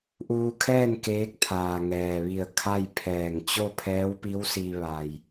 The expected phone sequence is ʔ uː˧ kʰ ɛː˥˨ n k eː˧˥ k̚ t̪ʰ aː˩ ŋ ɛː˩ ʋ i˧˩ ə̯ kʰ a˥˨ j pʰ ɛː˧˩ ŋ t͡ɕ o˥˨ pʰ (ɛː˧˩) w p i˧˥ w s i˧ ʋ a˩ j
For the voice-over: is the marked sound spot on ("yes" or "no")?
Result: no